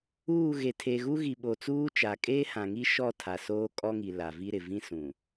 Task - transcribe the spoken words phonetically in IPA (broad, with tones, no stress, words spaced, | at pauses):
uː˦˨ɣe˨ tʰe˨ɣu˦ɣi˨ ɓo˨t͡suː˦t͡ʃa˨ kʼeː˦hã˨ŋi˦ ʃɔ˦˨ tʰa˨soː˦kʼɔ˦ŋi˨ la˨vi˦ɾɪ˨ vĩ˦sũ˨